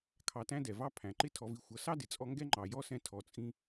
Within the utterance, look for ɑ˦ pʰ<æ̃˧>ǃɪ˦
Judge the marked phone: incorrect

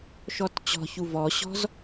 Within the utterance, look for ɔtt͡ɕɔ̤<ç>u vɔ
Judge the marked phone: correct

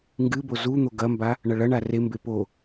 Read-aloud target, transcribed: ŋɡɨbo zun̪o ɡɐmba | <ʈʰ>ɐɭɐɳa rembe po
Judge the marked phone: incorrect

